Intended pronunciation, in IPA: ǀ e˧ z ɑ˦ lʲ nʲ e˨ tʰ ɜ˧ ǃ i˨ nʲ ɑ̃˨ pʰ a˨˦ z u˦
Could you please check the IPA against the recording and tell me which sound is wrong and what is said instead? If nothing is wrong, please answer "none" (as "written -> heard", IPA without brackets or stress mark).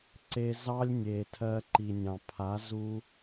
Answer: none